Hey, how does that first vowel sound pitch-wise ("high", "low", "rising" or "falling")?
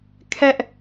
high